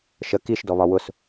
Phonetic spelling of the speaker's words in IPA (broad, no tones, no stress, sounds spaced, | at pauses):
ʃ ə k i ʃ d ɔ β ɒ w ʊ s